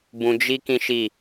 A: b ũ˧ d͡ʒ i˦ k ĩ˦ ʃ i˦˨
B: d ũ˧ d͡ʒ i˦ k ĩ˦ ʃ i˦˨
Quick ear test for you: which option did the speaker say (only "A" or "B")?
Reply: A